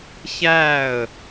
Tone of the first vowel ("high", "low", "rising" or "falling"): falling